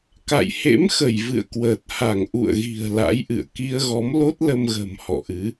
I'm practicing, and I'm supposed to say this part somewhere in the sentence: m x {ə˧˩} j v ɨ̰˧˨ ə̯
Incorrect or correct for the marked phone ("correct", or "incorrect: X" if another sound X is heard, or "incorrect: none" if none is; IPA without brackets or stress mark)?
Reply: correct